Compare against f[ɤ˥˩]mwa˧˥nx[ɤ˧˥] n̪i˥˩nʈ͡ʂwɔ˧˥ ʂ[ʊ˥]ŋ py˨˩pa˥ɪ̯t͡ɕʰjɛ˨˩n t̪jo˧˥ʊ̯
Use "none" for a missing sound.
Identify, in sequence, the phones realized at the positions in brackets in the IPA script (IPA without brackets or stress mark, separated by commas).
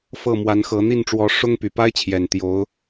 ɤ˥˩, ɤ˧˥, ʊ˥